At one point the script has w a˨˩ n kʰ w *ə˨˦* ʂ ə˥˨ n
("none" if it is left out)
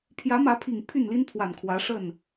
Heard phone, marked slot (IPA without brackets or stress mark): ä˨˦